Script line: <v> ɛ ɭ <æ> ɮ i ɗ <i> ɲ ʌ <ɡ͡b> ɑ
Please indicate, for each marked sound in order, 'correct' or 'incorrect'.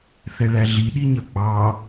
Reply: incorrect, correct, correct, correct

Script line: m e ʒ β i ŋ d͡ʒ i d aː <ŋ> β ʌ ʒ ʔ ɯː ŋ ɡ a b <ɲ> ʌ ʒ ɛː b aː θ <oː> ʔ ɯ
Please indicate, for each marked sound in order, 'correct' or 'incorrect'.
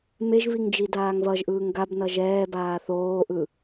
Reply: correct, incorrect, correct

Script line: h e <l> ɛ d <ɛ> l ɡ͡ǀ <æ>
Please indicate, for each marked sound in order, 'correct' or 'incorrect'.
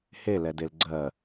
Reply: correct, incorrect, incorrect

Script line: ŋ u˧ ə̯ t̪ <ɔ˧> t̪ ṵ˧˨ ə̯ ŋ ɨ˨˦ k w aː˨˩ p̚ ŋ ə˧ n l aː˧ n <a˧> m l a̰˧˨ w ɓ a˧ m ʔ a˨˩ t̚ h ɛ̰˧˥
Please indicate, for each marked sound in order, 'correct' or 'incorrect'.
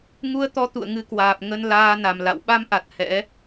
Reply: incorrect, incorrect

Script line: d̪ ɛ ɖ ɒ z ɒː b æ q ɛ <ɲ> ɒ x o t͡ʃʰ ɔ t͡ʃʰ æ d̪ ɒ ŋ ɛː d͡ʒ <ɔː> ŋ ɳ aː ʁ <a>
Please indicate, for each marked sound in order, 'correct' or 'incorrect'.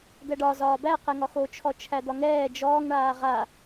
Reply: incorrect, correct, correct

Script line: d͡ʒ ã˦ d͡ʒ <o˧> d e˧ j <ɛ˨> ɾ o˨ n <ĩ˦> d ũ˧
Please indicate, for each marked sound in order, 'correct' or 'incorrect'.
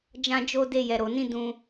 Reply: incorrect, correct, incorrect

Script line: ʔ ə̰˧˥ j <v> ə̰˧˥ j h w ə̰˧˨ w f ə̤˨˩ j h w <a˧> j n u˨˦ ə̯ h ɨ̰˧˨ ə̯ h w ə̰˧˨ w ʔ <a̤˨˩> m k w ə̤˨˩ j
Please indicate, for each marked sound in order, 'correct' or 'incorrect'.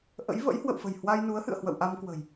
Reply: correct, correct, incorrect

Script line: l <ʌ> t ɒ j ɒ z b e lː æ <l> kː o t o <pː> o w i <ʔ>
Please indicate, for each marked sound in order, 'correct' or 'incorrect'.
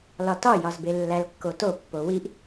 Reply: incorrect, correct, correct, correct

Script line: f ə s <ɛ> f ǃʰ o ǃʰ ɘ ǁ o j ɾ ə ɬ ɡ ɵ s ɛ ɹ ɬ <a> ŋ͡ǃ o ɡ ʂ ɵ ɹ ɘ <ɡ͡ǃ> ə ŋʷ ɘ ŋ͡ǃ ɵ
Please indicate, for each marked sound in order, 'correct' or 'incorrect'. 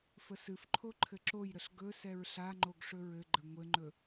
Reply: incorrect, correct, correct

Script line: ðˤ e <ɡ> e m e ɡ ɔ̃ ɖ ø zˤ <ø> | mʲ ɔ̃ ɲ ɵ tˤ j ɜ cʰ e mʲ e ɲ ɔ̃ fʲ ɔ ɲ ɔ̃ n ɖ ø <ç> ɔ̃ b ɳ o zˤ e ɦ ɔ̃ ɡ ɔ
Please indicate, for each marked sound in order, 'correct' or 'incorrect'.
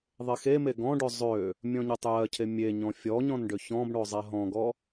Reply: incorrect, correct, correct

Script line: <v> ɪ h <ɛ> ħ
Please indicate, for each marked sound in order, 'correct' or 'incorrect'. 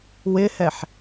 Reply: incorrect, correct

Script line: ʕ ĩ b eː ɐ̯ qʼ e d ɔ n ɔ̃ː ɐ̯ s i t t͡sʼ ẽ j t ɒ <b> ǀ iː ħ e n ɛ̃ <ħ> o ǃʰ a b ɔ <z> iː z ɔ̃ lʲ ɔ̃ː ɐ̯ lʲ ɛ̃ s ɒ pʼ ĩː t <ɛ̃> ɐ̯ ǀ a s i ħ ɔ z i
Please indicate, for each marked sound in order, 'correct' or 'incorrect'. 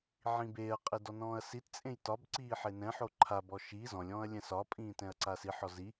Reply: correct, correct, incorrect, correct

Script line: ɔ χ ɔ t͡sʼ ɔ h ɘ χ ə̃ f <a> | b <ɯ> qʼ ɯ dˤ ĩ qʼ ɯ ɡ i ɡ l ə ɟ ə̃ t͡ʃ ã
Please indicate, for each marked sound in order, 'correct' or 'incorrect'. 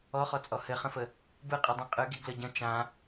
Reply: incorrect, correct

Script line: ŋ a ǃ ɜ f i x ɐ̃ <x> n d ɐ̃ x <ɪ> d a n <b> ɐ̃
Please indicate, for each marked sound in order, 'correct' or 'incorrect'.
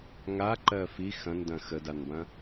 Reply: incorrect, incorrect, correct

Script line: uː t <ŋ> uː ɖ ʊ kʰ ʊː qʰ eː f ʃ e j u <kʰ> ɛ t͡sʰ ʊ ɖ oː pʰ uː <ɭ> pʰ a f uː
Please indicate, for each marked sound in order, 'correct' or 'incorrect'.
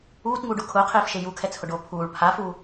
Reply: correct, correct, correct

